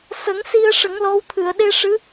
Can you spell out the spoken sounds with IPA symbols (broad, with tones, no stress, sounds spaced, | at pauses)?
s ə˨˩˦ ŋ s i˧ ə̯ ʂ ə˨˩˦ ŋ l ɔ˧˥ w t̪ʰ ɨ˨˩˨ ə̯ ɗ e˧ ʂ ɨ˧˥